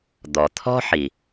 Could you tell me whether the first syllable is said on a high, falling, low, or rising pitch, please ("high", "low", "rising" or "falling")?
low